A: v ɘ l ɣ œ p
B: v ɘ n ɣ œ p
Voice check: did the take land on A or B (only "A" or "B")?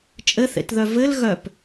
A